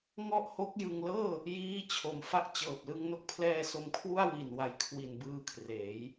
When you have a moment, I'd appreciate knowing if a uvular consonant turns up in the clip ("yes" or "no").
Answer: no